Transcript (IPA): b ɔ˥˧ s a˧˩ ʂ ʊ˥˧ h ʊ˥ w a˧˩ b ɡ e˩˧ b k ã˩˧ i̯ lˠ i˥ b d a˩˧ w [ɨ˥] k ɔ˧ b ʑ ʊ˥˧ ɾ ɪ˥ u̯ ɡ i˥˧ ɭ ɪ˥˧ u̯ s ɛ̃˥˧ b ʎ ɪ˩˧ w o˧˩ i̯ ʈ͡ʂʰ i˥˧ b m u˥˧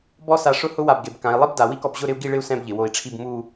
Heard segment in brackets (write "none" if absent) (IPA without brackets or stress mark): i˥